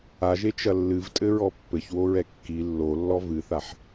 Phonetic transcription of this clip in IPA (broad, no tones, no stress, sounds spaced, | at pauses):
a ʒ e t͡ʃ ɐ lː ɨ v tʼ ɘ ɹ ɔ pː ɘ ç w o ɹ ɛ kː i lː o lː ɔ v ɨ θ a ħ